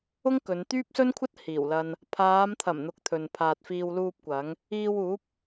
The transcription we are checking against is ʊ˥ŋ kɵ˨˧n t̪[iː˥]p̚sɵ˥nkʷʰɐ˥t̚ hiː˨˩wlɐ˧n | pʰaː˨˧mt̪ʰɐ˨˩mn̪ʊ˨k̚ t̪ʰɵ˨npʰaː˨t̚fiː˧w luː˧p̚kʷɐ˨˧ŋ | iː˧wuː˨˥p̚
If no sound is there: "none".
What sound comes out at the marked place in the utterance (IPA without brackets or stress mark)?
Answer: yː˥